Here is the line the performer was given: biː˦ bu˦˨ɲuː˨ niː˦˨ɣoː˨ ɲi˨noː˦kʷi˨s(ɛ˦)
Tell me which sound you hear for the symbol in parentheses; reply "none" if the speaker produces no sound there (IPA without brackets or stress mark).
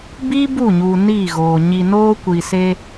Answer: e˦